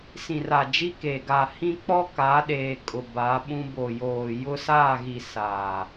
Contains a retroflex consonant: no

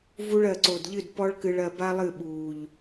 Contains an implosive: yes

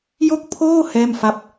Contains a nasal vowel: no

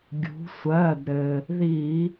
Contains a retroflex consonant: no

